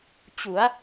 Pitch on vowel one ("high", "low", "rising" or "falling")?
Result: rising